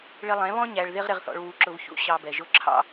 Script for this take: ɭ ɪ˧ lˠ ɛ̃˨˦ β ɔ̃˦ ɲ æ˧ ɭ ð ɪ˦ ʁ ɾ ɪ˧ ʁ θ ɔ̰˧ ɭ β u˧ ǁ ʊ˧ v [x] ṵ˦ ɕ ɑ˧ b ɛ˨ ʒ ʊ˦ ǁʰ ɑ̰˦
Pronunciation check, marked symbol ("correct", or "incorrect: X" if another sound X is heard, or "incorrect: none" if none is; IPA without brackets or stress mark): incorrect: ç